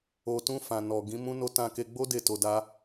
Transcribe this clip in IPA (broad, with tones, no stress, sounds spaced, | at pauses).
o˨ t ũ˧ f ã˨ n ɔ˨ ɡ ĩ˨˦ m ũ˦ n o˦ t ã˧ k e˧ ɡ͡b o˦ d e˦˨ t o˧ d a˦